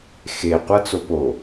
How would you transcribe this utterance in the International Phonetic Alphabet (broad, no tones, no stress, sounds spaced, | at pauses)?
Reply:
x e qʷ ʌ t͡s o p o